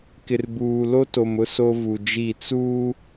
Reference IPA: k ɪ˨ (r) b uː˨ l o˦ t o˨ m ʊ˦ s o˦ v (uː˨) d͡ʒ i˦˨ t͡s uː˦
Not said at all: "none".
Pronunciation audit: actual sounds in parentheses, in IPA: r, u˨

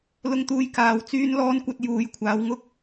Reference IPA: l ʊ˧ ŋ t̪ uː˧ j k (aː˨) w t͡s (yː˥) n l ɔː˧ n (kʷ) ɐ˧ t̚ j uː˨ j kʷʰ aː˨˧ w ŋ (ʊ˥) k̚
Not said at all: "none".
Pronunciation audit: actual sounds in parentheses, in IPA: aː˨, yː˥, kʷ, ʊ˥

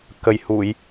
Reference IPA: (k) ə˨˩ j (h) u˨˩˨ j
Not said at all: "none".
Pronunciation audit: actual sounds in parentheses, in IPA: k, h

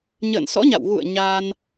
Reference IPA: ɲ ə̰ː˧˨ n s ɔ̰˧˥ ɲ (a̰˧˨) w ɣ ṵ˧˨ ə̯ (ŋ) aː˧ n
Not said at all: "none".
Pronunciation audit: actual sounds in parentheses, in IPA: a̰˧˨, ɲ

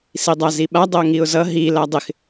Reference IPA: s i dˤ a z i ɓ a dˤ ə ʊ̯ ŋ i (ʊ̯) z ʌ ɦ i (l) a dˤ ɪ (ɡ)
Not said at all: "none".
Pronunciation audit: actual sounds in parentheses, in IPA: ʊ̯, l, x

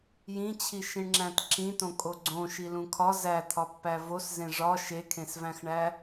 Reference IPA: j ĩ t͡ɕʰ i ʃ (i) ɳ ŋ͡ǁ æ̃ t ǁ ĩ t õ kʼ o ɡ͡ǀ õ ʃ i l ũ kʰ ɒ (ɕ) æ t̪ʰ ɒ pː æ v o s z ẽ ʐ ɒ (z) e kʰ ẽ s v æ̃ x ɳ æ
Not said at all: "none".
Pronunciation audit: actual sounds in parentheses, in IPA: ĩ, z, ʃ

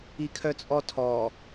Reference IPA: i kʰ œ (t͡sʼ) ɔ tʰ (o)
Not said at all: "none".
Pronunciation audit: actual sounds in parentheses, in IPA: t͡sʼ, ɔ

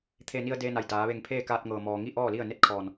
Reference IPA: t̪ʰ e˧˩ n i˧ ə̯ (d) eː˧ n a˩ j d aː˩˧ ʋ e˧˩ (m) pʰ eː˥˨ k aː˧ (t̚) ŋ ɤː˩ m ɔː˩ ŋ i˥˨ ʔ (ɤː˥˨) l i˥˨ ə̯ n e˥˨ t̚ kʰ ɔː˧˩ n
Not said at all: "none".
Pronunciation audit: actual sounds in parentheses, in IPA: d, ŋ, t̚, ɔː˥˨

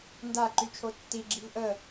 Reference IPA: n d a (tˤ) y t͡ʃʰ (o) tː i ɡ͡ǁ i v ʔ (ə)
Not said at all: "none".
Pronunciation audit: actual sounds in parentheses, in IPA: ǃ, o, ə

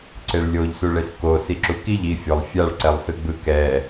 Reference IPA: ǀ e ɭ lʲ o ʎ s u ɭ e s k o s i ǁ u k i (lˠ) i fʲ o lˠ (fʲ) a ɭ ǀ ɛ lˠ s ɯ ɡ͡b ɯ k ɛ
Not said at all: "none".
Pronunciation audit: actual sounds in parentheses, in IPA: ʎ, fʲ

